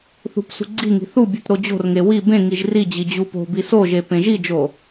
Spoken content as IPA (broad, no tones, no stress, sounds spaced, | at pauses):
θ ṳ p s ṳ ɡ͡ǀ i ŋ i̤ θ u bʲ u t ɾ o d͡ʑ o̤ r ŋ e w i b ẽ ŋ i ʒ r i d͡ʑ i d͡ʑ u p o̤ b i s o ʒ e p ẽ ʒ i d͡ʒ o